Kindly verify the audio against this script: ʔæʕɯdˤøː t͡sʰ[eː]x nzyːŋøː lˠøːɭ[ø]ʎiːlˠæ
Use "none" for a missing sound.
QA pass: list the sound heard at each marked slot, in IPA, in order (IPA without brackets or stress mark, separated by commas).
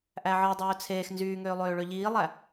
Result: eː, ø